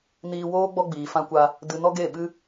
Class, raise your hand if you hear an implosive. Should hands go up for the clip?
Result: yes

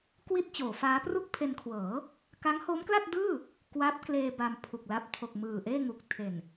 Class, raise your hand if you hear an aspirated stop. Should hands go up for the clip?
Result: yes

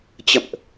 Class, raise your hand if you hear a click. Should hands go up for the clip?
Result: no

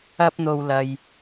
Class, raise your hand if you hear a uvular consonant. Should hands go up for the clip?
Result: no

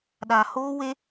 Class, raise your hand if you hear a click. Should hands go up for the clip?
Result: no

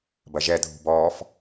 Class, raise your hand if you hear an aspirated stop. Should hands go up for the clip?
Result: no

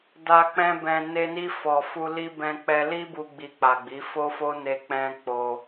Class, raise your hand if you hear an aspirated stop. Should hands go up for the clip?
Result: no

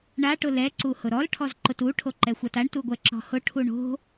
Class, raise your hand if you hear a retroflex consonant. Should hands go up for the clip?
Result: yes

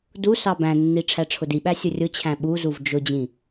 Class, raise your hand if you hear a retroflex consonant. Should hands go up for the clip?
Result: yes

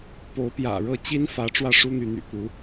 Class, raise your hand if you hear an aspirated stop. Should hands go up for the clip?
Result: no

